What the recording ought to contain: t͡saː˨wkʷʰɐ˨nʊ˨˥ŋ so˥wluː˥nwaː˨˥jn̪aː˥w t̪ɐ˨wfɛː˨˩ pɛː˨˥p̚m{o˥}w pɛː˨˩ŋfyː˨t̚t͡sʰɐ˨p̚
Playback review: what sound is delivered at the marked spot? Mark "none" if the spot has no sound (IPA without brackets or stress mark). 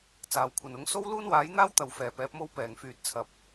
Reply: o˥